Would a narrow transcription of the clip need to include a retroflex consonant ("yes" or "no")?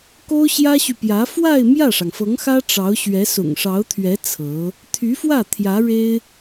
yes